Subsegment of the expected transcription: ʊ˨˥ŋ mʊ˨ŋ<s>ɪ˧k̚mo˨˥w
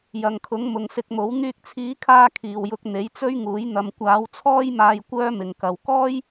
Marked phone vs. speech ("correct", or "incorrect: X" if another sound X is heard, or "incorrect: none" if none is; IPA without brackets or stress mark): correct